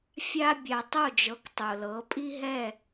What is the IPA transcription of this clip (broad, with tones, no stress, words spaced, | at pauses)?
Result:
fʲa˦ bʲa˨tˤo˦˨d͡ʒɤ˨˦k tˤo˨lɤ˨˦ pʼi˦ɦɛ˦˨